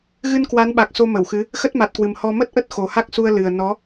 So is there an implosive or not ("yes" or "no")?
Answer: yes